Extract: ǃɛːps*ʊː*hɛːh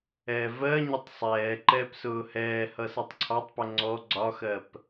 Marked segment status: correct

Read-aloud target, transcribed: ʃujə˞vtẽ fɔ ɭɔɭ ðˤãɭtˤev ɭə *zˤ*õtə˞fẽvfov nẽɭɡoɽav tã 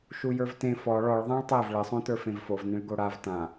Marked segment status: incorrect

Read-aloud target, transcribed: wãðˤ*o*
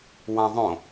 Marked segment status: incorrect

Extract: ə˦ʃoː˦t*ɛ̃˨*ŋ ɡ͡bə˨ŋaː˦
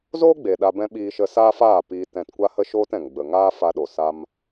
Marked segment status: correct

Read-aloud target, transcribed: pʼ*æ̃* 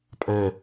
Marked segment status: correct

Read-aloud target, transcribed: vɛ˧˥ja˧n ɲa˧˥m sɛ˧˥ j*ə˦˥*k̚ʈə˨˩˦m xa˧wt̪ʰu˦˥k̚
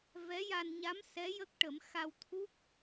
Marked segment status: correct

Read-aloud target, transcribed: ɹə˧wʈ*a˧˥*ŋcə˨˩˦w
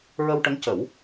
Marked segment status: incorrect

